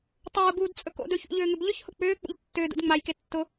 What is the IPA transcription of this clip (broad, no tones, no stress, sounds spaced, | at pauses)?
tˤ ʊː b uː d t͡sʼ ɵ k o̰ d ɵ ç ṵ ʎ ʏː ŋ ʏ b ʎ ʏ ç h ʊ k͡p ʏː k͡p ṵ ʎ tː ʏː d ṵ d ŋ͡m a j k e tː ʊ